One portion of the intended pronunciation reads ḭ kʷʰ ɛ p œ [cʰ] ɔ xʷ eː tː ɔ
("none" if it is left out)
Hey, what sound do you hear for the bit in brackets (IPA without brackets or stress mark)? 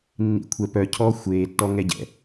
cʰ